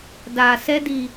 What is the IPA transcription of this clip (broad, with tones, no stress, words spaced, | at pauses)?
daː˨sɛ˦di˨